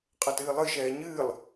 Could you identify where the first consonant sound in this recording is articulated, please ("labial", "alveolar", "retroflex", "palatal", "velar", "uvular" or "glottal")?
uvular